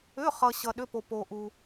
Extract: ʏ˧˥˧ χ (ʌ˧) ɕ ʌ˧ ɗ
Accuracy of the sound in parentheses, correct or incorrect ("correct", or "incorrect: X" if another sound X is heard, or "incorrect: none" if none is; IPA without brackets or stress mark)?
correct